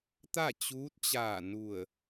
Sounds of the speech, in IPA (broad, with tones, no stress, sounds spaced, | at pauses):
t̪ a˥˨ t͡ɕ uː˧˥ t̚ t͡ɕ aː˧˩ n u˧˩ ə̯